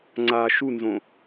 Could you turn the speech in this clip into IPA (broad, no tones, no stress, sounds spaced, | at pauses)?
ŋ͡ǀ a ʃ u n z õ